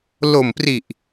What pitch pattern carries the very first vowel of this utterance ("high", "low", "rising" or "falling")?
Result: low